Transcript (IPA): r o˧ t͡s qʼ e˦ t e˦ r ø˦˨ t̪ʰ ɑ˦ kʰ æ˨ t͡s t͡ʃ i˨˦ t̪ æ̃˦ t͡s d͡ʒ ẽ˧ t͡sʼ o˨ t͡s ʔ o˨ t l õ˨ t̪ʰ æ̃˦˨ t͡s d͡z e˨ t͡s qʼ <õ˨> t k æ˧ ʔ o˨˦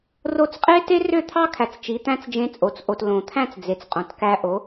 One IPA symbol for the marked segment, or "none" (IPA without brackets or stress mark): õ˨